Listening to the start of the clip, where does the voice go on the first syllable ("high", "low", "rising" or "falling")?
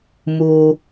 high